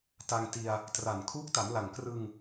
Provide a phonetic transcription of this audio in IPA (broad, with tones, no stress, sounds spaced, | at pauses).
t a˧ ŋ t i˧ a̯ | t r a˨˩ n kʰ uː˦˥ k̚ t a˩˦ m l a˨˩ ŋ k r ɯ˧ ŋ